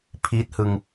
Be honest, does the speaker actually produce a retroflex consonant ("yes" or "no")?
no